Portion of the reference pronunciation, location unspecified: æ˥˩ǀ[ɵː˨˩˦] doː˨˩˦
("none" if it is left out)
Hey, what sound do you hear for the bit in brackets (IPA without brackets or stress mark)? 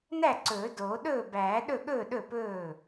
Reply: ɵː˨˩˦